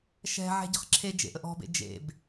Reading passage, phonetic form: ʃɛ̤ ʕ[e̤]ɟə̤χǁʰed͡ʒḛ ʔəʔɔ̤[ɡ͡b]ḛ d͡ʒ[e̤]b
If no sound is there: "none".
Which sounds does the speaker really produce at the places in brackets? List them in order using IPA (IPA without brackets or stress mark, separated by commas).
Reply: ɛ̤, b, ḛ